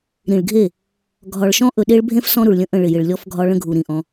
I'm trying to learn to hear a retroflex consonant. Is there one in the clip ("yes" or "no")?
yes